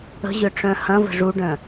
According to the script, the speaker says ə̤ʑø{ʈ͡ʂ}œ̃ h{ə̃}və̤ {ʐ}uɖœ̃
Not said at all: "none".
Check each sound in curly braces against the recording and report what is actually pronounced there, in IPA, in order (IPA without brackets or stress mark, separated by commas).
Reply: ʈ͡ʂ, ɐ̃, ʐ